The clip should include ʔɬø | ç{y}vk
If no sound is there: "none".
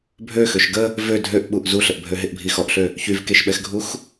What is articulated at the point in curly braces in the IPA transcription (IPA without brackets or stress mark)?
y